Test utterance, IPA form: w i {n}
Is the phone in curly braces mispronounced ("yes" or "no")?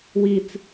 yes